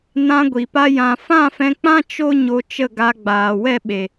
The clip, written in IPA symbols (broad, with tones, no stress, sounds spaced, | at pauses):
n ã˧ ɡʷ i˨ p a˦ j ã˧ f ã˦˨ f ɛ̃˧ k͡p ã˦ t͡ʃ o˦ ɲ o˧ t͡ʃ ə˦˨ ɡ a˧ ɡ͡b aː˨ w ɛ˦˨ ɓ e˨